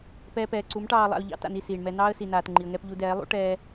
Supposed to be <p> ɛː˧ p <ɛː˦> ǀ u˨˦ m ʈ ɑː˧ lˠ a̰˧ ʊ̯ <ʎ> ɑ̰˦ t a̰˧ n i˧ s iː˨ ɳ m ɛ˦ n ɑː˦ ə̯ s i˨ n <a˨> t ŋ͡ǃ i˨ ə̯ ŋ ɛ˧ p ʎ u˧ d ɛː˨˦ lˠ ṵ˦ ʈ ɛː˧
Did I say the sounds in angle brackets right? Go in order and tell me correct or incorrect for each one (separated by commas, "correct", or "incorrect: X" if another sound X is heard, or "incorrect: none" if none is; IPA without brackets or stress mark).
correct, incorrect: ɛː˨, correct, incorrect: aː˨